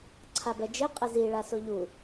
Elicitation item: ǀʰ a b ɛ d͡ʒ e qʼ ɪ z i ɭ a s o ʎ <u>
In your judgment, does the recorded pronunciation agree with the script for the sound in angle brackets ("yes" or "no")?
yes